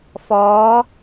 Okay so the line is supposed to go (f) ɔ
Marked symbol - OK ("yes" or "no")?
yes